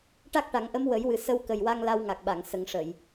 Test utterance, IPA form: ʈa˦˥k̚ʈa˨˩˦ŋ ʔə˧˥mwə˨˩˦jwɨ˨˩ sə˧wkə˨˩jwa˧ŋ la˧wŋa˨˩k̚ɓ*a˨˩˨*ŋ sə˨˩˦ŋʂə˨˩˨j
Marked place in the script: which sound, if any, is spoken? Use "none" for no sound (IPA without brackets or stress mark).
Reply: a˨˩˨